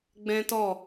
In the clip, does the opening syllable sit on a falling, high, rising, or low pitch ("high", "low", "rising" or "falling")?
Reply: high